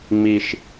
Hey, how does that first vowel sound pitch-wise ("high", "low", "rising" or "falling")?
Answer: high